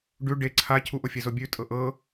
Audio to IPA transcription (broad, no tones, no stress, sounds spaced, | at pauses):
ɖ ʉ ɖ e ǀʰ a cʰ u ʔ o fʲ e z o bʲ ʉ tʼ ɤ ʔ ɤ